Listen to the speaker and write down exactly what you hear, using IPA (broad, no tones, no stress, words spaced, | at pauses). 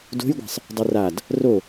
do̤jɡʷa̤sˤ | dˤurad | ro